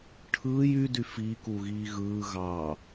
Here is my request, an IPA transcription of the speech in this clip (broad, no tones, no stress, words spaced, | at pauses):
ʈʰɯːj ydy fikuɣiː ɣɯː ɣɑ